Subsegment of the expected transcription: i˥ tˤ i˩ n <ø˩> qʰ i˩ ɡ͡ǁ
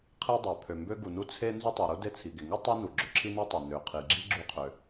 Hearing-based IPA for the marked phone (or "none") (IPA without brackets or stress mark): ø˩